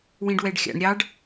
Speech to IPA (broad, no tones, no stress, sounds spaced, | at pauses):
w ĩ ɖ w ɛ ɖ xʲ a̰ ɳ ɾʲ ɑ ɖ